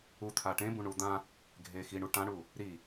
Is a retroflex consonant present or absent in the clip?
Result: present